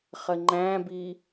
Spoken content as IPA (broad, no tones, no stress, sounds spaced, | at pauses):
χ ə ŋ͡ǃ æ̃ b i